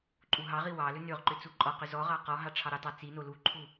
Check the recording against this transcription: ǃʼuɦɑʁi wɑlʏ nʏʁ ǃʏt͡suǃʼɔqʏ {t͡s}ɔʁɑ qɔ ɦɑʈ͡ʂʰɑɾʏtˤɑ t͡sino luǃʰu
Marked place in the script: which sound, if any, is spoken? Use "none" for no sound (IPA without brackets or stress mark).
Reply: z